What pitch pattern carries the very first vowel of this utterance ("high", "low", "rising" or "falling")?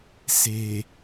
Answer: low